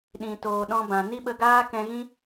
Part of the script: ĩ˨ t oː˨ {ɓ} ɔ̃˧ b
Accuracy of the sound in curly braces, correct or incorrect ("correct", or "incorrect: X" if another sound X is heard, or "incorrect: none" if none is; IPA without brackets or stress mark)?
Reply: incorrect: ɗ